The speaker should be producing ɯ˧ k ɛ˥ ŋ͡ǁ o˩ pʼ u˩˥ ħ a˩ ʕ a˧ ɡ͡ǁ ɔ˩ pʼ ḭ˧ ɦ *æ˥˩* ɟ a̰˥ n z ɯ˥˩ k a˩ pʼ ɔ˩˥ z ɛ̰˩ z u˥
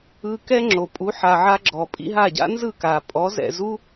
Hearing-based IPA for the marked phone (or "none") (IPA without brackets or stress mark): a˥˩